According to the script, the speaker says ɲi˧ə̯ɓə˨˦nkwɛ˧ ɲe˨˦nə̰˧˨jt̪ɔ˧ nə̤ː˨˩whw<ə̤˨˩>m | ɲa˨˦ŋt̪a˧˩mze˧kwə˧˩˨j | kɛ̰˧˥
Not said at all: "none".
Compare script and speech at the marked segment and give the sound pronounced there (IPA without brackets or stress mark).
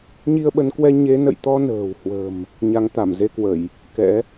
ə̤˨˩